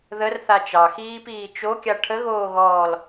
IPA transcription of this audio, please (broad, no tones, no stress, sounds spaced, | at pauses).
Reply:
ð ə r θ a t͡ʃ ɑ x iː p iː t͡ʃ o kʲ a ʈʰ ə ɣ oː ɣ ɔː l